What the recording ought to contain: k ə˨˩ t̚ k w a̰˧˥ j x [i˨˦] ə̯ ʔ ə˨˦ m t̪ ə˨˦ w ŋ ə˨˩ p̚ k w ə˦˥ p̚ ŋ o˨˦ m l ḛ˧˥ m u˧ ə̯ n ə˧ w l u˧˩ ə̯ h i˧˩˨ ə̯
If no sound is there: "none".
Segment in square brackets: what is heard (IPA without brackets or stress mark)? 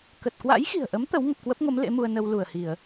i̤˨˩